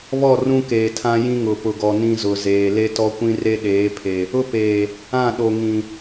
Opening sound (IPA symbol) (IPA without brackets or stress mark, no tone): β